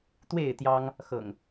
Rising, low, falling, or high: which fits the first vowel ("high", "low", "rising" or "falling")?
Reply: falling